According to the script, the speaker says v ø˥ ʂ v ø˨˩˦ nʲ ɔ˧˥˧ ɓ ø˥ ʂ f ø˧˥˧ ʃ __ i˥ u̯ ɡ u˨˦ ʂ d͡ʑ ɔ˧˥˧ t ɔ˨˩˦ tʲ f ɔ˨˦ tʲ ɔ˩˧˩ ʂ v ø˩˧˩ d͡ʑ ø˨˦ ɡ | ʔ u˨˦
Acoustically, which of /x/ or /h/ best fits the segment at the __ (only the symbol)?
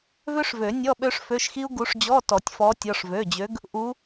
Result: x